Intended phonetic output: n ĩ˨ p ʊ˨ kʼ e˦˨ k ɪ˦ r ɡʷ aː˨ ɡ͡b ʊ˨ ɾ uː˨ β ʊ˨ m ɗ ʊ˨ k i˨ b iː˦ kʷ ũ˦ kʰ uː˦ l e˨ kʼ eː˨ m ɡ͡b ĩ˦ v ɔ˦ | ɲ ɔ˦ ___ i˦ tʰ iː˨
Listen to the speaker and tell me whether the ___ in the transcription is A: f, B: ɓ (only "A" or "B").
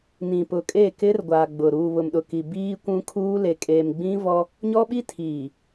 B